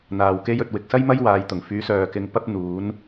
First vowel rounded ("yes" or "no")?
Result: no